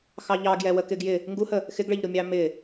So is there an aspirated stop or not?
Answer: no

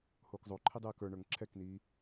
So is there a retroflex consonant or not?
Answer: yes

